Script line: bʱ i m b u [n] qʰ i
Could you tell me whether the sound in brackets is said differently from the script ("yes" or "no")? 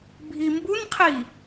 no